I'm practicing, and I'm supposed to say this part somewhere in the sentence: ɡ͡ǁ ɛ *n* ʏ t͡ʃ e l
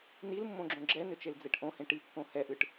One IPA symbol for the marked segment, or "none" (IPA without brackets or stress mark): n